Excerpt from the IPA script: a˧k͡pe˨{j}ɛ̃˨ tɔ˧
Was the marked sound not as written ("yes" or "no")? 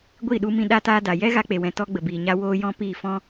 yes